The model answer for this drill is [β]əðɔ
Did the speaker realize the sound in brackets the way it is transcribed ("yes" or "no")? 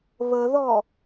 yes